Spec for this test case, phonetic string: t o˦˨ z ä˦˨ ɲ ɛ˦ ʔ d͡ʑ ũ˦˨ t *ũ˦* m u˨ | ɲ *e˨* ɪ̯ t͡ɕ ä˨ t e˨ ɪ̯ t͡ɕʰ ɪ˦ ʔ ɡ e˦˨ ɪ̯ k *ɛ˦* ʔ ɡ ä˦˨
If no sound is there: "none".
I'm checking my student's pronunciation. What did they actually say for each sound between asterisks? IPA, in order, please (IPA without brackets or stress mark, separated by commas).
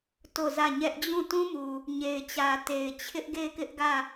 ũ˦, e˨, ɪ˦